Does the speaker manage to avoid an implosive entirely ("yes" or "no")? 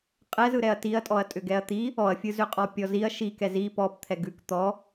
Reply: yes